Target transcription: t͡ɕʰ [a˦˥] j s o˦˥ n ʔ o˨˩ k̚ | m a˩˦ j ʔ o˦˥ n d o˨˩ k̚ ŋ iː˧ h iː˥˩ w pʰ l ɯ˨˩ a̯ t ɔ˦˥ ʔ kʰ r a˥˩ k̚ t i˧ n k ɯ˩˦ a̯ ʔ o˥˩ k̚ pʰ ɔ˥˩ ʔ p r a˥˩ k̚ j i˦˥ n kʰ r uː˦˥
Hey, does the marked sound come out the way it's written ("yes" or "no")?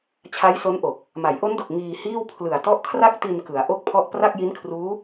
yes